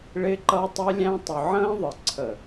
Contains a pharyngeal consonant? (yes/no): yes